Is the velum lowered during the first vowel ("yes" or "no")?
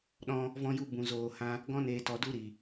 yes